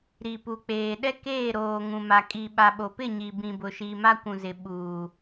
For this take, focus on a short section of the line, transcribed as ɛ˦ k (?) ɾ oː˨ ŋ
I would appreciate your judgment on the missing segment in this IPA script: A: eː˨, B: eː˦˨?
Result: B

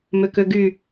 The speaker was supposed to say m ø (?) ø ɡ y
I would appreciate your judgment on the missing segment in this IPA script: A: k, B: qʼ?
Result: A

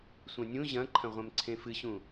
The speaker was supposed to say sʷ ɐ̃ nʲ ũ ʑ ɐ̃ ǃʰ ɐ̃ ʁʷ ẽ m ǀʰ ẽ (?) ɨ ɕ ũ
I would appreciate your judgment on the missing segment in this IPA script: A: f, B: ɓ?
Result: A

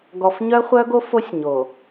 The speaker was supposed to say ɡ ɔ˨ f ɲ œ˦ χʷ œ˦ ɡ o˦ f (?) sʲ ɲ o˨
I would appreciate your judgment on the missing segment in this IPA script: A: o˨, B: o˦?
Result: B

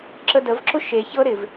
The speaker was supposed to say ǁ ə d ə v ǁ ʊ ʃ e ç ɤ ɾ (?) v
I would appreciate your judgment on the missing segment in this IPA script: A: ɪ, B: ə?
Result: A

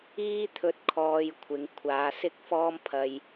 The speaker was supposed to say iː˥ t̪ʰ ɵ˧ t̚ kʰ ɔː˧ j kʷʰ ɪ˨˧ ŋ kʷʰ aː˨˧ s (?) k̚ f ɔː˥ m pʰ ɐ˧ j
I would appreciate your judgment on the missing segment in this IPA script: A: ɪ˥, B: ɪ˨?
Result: A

